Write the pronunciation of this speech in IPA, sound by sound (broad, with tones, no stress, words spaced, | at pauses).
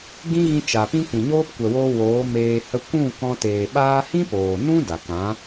ɡĩ˦ɣĩ˧ t͡ʃa˨pĩ˦ kʷĩ˨ɲoː˦p kʷɛ˨woː˧ woː˨˦meː˧hə˦ kʷũ˦˨ kɔ̃˧teː˨ɓaː˦ hĩ˦poː˨nũ˦ da˨kã˨˦